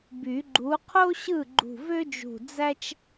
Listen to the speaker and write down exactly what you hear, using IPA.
b y˨˩˦ ɡ͡ǃ u˨˥ qʰ o˥ ɕ ɯ˥˩ ɡ͡ǃ ṳ˧˩ v ø˥ d͡ʒ ṳ˧˩ d͡z æ˥ t͡ʃ

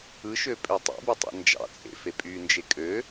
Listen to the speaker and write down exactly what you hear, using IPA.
ɯ ʃ ø pʼ ø tˤ ṵ b e tˤ ḭ n d͡ʒ ɑ̰ t͡sʼ ḛ f e pʼ y n d͡ʒ e kʼ ø

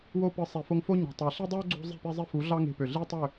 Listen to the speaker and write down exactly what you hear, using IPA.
w o˧ p ɯ˨ sˤ e˨ f o˧ ŋ f o˦ ɲ o̤˨ tˤ ɑ˨ ɬ i˦ dˤ u˦ o̯ ɡ͡ǀ o̤˦ zˤ e̤˦˨ p i˧ zˤ i˧ f u˨˦ ɮ ɑ˦ ŋ e̤˧ p ø˨ ɮ i˦ tˤ ø˦˨

